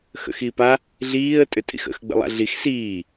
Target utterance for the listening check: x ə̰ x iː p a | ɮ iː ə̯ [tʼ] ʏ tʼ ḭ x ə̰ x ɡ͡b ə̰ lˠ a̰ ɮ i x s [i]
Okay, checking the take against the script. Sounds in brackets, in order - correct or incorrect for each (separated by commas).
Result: correct, incorrect